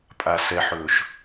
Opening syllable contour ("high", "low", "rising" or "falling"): low